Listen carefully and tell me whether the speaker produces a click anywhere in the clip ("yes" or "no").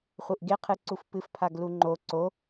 yes